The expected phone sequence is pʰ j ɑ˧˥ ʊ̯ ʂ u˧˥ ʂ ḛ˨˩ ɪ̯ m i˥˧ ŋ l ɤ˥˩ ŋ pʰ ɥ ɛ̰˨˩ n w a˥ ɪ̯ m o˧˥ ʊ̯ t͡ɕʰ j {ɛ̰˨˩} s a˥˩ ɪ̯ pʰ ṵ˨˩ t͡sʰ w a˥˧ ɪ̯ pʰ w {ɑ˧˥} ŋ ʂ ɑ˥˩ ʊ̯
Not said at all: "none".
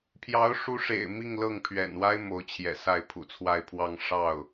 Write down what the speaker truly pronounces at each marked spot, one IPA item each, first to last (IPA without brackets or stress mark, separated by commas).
ɛ̰˨˩, ɑ˥˧